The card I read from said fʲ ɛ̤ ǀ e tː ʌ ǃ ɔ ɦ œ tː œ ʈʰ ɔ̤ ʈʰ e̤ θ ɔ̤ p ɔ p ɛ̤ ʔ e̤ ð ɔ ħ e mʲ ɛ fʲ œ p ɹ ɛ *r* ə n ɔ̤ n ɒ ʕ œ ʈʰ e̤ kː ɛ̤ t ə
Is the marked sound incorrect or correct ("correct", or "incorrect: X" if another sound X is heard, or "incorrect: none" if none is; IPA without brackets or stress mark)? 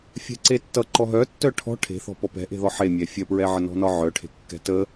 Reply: incorrect: ʕ